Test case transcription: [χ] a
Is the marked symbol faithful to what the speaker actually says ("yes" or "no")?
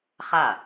yes